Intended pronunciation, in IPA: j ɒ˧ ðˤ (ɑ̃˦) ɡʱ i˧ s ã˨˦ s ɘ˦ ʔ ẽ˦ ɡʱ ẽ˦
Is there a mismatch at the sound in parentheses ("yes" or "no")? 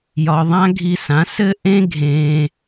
yes